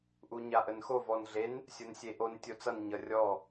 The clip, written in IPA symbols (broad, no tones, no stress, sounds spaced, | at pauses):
ʔ u ɲ a ʔ ə n x o v ɔ n ɮ e n | sʲ o n sʲ e ʔ o n tʲ o t͡s ʌ n ɲ ʌ rʲ ɔ